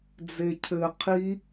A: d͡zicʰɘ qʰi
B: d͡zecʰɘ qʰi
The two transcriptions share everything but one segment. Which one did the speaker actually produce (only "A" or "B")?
B